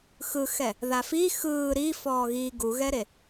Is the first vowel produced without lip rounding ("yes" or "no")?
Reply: yes